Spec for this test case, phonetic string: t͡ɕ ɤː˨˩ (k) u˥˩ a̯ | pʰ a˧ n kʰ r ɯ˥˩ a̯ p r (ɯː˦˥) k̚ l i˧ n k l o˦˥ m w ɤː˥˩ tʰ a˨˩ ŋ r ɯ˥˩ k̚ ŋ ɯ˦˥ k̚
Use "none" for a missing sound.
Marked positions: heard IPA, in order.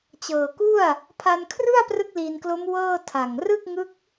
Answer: k, ɯ˦˥

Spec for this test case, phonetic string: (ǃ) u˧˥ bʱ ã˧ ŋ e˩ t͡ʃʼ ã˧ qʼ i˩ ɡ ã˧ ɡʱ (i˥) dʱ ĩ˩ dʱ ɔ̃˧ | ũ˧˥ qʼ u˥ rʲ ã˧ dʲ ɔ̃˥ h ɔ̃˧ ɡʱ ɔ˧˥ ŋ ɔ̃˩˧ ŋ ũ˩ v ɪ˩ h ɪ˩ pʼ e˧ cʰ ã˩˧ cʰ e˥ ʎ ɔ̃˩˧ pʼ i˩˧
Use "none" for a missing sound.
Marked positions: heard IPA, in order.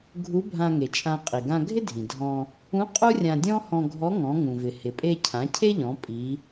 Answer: ɡʱ, ɪ˥

